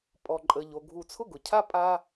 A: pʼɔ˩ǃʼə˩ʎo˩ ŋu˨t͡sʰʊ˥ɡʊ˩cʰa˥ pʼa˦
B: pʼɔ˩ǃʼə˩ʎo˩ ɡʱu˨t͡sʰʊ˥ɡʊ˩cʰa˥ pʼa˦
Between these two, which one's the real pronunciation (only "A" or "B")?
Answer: B